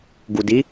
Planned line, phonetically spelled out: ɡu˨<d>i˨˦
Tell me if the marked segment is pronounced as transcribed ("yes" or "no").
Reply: yes